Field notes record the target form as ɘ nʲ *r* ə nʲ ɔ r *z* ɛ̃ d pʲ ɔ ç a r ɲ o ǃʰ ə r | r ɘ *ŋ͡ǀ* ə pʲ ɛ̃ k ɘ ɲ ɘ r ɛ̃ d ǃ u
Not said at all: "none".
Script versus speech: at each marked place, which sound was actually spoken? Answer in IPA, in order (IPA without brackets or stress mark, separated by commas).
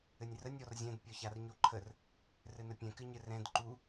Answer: r, zʲ, n